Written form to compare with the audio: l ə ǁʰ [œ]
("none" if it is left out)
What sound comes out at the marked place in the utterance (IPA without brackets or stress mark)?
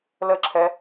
ɛ